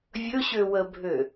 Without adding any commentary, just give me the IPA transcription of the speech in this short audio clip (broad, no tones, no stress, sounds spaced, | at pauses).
vʲ ɵ ɕ ø w ə bʱ ø